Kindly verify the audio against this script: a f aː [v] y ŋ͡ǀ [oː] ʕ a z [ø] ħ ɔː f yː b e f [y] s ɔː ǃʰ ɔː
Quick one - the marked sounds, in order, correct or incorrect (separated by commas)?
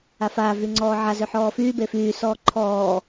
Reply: correct, incorrect, correct, incorrect